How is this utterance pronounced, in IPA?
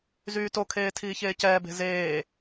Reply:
z yː t o kʰ eː tʰ iː ç eː c ɛː b e̤ z eː

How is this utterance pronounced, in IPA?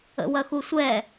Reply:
ə̰ w ɐ x u sʷ ɛ

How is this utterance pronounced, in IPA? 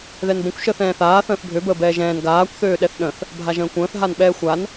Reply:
ð ɛ n b ə̃ kʷ ʃ əː θ ɛ̃ː θ aː θ ə̃ː θ bʱ ø b əː b ɛː ʒ ɛ̃ː n ɡ aː kʷ θ øː ɗ ɛ θ ɗ ə̃ θ | bʱ a ʒ ə̃ː kʷ ə̃ː θ ɦ a n ɓ ɛː xʷ a n

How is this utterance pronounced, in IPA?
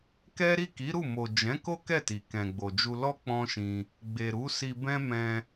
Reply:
k ɛ˦ ɾ i˦˨ k i˨˦ ɾ u˦˨ m o˨ d͡ʒ ɛ̃˨˦ k o˦ k ɛ˦˨ t i˨ k ɛ̃˨ ɡ͡b o˨ d͡ʒ u˧ l ɔ˦ k͡p ɔ̃˦ ʃ ĩ˧ | ɡ͡b e˨ ɾ u˨˦ s i˧ b ɛ̃˦ m ɛ̃˧

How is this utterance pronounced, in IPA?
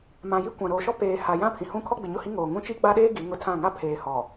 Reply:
m ã˨ j i˦ kʷ ã˨ ɾ oː˨ ʃ ɔ˦ p eː˨ h a˨ j ã˦ pʰ ĩ˨ h ũ˦ kʰ ɔ˦ ɡ͡b ɪ˨ ɲ ʊ˦˨ h i˦ ŋ oː˨ ŋ ũ˦ t͡ʃ i˦ ɡ͡b a˦ ɗ eː˦ ɡ i˨˦ ŋ ʊ˦˨ tʰ ã˦˨ ŋ a˦ pʰ eː˨ h ɔ˨

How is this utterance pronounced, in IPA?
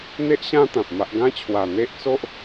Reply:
n̪ e˦ ʔ ɕ ã˦ t̪ ã˨ p̚ m a˦ ʔ ɡ ã˦ t͡ɕʰ w a˨˩ n̪ e˦ ʔ t͡s o˦ ʔ

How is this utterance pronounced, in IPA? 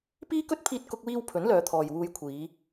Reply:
p iː˥ k ɵ˥ t̚ pʰ iː˥ t̚ k ʊ˥ k̚ w iː˥ w pʰ ɵ˨˥ n l œː˨˧ t̪ʰ ɔː˨ j w uː˧ j kʷʰ iː˨˧

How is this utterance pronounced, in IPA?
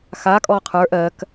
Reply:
x a kʼ ɔ qʰ ə˞ ʔ ɜ k

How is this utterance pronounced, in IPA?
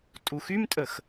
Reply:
tʼ u x y m tʼ ə x

